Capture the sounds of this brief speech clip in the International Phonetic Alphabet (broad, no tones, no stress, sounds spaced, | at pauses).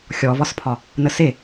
xʲ ɔ v ɒ s pʰ ɒ | n ə s e